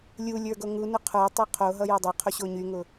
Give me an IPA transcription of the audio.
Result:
lʲ u lʲ ə˞ ɡ o ŋ u n ʊ qʰ ə˞ tˤ o qʰ o ɦ ʌ j o dˤ ʌ qʰ o ɕ o ɲ y ŋ ʊ

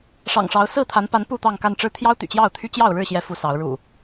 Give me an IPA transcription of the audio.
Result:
ʂ ɑ̰˨˩ ŋ ʂ ɑ˨˦ ʊ̯ s ɹ̩˥˨ t̪ʰ a˨˦ n p a˨˦ n p u˥˨ t̪ ɑ˥˨ ŋ k a˥˨ n ʈ͡ʂ ɻ̩˦ t̪ʰ j ɑ˦ ʊ̯ t̪ y̰˨˩ t͡ɕ j ɑ˥˨ ʊ̯ t̪ʰ y˦ t͡ɕ j ɑ˥˨ ʊ̯ ɻ ɻ̩˥˨ ɕ j ɛ˨˦ f u˨˦ s ɑ˨˦ ʊ̯ ɻ ṵ˨˩

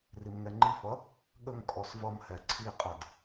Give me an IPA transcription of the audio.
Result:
r i m ŋ ɛ ŋ͡ǃ i f ʌ | ɠ ə ŋ kʼ ɔ s v ʌ m h ɛ ǀʰ i qʼ ʌ d

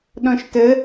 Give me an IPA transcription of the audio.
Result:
ɗ ɔ̃ ʃ t ə

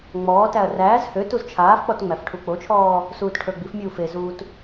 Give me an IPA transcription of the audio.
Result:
ŋ͡m ɔː t æ ɐ̯ r æː z h ø t u z t͡ʃʰ aː f k͡p ɔ t ŋ͡m æ f ʈʰ u k͡p o t͡ʃʰ ɔː | s uː t ʈʰ ə˞ ɡ͡b i f mʲ uː f e z uː t

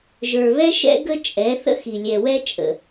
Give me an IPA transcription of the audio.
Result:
ʒ ə˞˨ β ɛ˦ ʃ ɛ̰˦ ɡ ə˦ t͡ʃʼ ɛ˨˦ θ ə̰˦ x i˨ lʲ ɛ˨ w ɛ˦ t͡ʃʼ ə̰˨

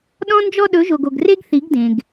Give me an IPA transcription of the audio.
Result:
ɗ ɔ̃˦ n d͡ʒ ɔ˦ ɗ ɵ˨˦ ʒ o˨ ɡ o˨ ɡ r e˦ ɡ θ i˨˦ ɡ d ẽ˨ ɡ

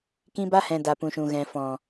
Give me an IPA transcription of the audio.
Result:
k ĩ˧ b a˧ h ɛ̃˨ d a˨ p ũ˨ ʃ ũ˨ ɣ ɛ̃˨ f ɔ̃˨

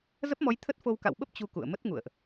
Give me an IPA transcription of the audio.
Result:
z ə˦˥ p̚ m ɔ˨˦ j t̪ʰ ə˦˥ t̚ f o˧ w k a̰˧˨ w ɓ ə˦˥ p̚ t͡ɕ u˧ k ṵ˧˨ ə̯ m ə˦˥ t̚ ŋ ṵ˧˨ ə̯ ʔ

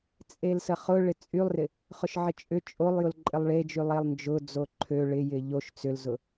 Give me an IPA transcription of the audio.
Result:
t͡sʼ e l s ə χ ʊ ɭ ɪ t͡sʼ y lˠ r ɪ | χ ʊ ʃ ʕ ɪ t͡ʃʼ ʏ t͡ʃʼ o lˠ j ʊ l ǃʼ ɪ lˠ ɭ e d͡ʒ y lˠ e lˠ n d͡ʒ ʊ d͡z o ǃʰ ø ɭ ɪ j ɪ ʎ o ʃ t͡s ʏ l z ʊ

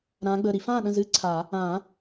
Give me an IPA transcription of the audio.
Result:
ɾ ãː˨˦ ɡ͡b əː˩˧˩ ɾ i˧˥˧ f ãː˥˩ ɗ ə̃˥˩ z ɨ˧˥˧ ǀʰ a˨˩˦ | ã˨˩˦

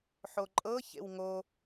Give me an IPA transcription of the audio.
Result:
ħ o ǃʼ ɤ ç ḛ w ŋ o

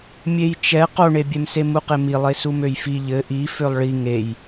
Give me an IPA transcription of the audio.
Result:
mʲ e j t͡ʃ ɛ q o ɳ e bʲ ɛ m s e m u q e m i lˠ e s u m ø j f i ʎ ɘ ʔ i f ø lˠ ɭ i ŋ e j

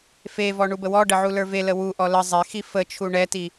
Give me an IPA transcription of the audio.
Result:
f e v ɔ ɳ u b ə w ɔ ɖ ə ʕ u l ə˞ v e l ə w u ʔ ɔ l ə zˤ e x i f ə t͡ʃʰ u ɳ ɛ t i

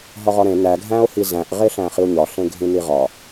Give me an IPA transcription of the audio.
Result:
ɦ ɒ ʁ ɒ ɾ ẽ n æ ɡʱ æ̃ o̯ h i z æ̃ ʔ ʁ e ɬ æ̃ χ i o̯ ɲ ɒ ɬ ẽ ɡʱ ĩ n i ʁ ɒ

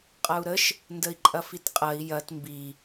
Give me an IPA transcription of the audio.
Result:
qʼ ɐ u̯ ɾ ə ʃ | n d ə i̯ ǃʼ ɐ f i t qʼ ɐ i̯ j ɐ t m b i

